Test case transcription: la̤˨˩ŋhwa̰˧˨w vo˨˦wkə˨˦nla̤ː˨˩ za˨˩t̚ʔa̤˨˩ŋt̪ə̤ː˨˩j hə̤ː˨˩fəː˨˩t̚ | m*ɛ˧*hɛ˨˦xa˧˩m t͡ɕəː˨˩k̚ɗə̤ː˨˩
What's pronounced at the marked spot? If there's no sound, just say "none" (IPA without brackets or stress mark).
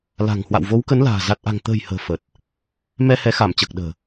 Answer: ɛ˧